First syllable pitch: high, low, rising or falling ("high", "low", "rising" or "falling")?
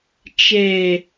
low